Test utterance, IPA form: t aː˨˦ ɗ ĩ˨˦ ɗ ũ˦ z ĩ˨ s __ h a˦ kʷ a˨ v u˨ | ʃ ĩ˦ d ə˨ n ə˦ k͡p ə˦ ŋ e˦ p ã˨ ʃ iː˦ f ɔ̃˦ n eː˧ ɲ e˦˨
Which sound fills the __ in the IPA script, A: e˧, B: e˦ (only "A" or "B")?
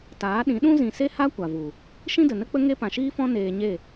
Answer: B